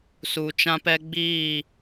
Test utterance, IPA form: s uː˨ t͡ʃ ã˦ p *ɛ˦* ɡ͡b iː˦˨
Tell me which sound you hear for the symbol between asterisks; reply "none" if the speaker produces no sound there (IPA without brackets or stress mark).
ɛ˦